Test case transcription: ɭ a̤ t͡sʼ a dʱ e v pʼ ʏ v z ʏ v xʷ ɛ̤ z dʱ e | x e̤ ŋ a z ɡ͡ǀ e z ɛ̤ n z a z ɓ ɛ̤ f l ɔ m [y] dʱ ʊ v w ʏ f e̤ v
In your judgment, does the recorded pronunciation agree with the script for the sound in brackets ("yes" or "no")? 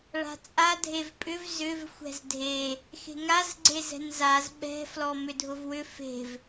no